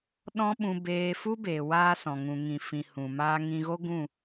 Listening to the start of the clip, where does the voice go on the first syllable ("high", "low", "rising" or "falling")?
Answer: high